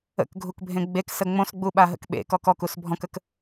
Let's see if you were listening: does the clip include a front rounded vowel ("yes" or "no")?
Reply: no